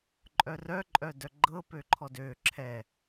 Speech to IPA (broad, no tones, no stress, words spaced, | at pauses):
ǃʼœrœ ǃʼœdœɡ͡ǃɤ pøǃʰɔdø ǁʰɛ